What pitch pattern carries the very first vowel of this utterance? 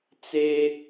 high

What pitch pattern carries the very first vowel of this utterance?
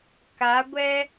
rising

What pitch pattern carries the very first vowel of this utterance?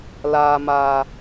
low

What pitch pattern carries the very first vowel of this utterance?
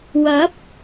rising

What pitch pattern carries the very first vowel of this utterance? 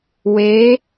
rising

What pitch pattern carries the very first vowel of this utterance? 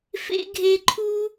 high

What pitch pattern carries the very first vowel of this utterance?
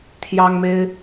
high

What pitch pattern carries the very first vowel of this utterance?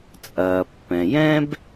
low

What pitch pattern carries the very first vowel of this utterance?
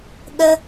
high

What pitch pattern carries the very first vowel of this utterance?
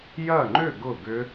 falling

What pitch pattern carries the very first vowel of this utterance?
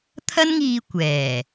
high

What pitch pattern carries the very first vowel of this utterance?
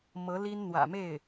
rising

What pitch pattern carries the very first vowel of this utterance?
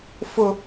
high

